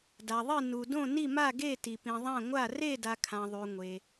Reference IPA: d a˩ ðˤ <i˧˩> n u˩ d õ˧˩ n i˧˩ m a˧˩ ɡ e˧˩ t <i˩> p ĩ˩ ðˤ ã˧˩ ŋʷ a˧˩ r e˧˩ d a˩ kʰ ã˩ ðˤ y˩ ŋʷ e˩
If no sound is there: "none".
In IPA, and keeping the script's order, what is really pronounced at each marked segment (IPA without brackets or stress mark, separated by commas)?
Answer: i˧˩, i˩